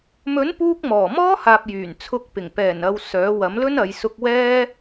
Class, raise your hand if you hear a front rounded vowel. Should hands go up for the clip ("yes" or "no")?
yes